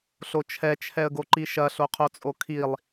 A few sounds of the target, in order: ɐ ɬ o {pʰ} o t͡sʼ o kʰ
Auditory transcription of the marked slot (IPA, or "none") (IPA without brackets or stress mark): qʰ